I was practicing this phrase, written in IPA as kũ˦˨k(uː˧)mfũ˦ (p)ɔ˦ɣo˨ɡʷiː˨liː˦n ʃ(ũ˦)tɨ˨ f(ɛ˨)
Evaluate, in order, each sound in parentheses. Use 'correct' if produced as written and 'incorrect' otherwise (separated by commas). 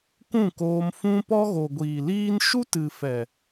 incorrect, correct, incorrect, correct